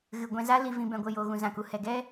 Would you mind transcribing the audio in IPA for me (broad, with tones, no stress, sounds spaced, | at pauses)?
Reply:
ɣ ɨ˨ ɡʷ ɛ̃˧ z a˦ l i˨ v ĩ˨ b ɛ̃˨ ɡʷ ə˨ j oː˨ ɣ ũ˨ z ã˨ k u˨ h ɛ˨ ɡ ɛ˦